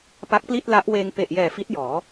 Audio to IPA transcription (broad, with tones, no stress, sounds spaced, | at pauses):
p a˦˥ k̚ p l i˥˩ t̚ l a˦˥ ʔ w eː˧ ŋ p e˨˩ ʔ j ɛː˨˩ f i˦˥ t̚ j ɔː˩˦